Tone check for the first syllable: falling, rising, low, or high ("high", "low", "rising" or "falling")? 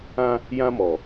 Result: high